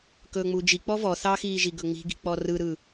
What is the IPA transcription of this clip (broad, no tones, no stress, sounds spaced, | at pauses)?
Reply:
k ɵː ŋ͡m uː d͡ʒ i k͡p ɔ v ɔ θ ɑ x iː ʒ i ɡ ɵ ŋ͡m i̤ ɡ i̤ k͡p ɔ r ɯ ɾ ɯ